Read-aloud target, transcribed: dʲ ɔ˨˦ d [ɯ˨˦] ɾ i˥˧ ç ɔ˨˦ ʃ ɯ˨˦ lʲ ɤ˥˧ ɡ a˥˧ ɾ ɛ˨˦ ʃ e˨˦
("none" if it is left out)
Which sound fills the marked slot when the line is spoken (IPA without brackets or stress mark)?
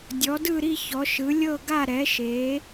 ɯ˥˧